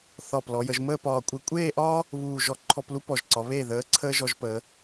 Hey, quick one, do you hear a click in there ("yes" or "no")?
yes